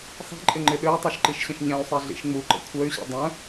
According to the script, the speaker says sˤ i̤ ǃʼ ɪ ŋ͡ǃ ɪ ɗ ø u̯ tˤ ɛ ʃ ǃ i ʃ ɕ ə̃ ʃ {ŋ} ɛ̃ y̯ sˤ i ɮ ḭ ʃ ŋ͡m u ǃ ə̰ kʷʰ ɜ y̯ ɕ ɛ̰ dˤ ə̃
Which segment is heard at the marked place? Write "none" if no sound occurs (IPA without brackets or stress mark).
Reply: ɲ